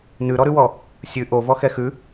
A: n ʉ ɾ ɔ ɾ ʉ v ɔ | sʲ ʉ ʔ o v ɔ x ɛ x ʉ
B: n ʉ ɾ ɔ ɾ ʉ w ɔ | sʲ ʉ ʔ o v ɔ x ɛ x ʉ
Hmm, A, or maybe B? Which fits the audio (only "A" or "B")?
B